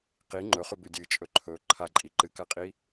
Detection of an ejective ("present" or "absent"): present